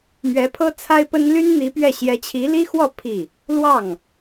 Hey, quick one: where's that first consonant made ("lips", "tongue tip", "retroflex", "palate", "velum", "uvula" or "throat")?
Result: lips